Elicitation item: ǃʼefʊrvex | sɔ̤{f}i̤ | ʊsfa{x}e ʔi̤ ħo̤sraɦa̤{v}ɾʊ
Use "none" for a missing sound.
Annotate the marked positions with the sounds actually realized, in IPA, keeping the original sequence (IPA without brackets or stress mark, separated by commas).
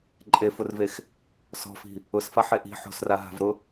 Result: f, ħ, v